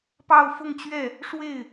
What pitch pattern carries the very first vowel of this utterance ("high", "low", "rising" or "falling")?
falling